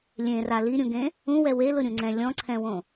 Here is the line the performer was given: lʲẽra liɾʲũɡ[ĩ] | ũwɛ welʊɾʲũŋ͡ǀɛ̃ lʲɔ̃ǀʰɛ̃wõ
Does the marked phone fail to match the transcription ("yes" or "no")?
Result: yes